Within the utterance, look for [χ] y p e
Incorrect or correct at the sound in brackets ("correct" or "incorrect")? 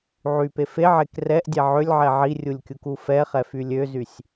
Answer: incorrect